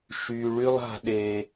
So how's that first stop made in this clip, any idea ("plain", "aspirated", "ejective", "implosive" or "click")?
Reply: implosive